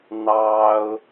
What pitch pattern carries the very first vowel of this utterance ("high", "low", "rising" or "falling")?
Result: high